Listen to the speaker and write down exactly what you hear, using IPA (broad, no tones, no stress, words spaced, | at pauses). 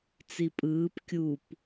t͡sipʼɯːp kʲup